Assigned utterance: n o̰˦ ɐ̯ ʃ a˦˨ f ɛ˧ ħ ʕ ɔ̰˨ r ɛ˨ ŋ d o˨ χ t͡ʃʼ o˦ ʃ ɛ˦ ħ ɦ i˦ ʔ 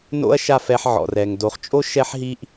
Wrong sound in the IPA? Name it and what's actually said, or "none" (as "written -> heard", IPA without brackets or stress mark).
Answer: none